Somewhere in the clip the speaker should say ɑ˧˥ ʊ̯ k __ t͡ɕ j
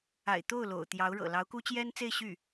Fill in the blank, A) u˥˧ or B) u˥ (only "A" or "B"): B